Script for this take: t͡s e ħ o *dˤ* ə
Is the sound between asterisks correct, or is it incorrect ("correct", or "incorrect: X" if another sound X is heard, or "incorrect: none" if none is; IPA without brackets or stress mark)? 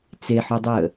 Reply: correct